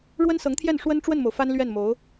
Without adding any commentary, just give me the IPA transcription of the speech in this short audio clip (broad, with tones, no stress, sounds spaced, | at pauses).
ɻ w ə˥ n s ɤ˧˥ ŋ t̪ʰ j ɛ˥˩ n ʂ w ə˥ n ʈ͡ʂ w ə˥˩ n m o˩ ʊ̯ f a˥ n l ɥ ɛ˥˩ n m o˧˥ ʊ̯